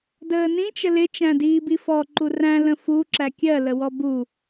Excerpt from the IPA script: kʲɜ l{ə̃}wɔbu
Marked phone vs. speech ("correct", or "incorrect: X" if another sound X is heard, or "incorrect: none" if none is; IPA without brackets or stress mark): incorrect: ə